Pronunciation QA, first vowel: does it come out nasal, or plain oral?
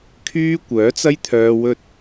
oral